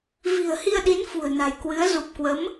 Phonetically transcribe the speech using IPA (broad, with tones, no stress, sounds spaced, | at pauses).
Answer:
v i̤˨˩ ə̯ h i˧ ə̯ ɗ i˨˦ n f ṳ˨˩ ə̯ n a̤˨˩ j k w ɨ˨˦ ə̯ z u˨˩ p̚ k w ə˨˦ m